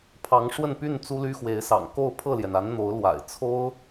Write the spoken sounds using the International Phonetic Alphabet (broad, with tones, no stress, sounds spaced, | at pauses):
pʰ ɑ˧˥ ŋ ʂ w ə˥˧ n p y˥˩ n t͡s u˥ l y˥ x w e˧˥ ɪ̯ s ɑ̰˨˩ ŋ k o˥˧ ʊ̯ pʰ ɤ˥˩ l j ɛ˩ n a˧˥ n n̪ o˧˥ ʊ̯ l w a̰˨˩ ɪ̯ t͡sʰ o˥ ʊ̯